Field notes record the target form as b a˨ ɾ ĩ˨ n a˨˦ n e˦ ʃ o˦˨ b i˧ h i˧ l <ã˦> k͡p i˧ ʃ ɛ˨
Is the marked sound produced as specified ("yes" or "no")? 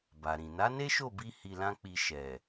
yes